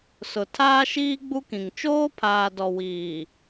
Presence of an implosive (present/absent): absent